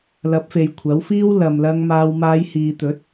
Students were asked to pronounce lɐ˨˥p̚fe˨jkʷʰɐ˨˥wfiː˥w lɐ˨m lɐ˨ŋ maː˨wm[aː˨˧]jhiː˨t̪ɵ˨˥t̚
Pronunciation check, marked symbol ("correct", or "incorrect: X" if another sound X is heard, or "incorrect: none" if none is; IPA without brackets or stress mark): correct